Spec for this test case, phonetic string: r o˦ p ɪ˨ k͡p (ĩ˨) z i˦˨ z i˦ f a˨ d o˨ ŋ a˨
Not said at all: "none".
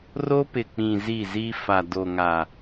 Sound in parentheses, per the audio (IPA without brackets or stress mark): ĩ˨